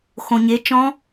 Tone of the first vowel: low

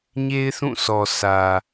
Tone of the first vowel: high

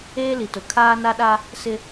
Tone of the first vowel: high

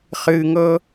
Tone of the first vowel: low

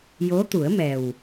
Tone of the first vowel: rising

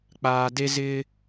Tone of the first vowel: high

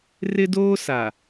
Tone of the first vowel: high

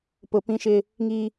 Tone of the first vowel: low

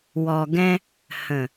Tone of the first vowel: low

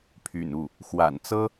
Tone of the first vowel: low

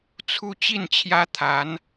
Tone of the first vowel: falling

